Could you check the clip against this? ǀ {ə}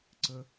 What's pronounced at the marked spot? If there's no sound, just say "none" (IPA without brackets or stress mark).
ə